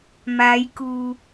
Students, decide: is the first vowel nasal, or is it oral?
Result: oral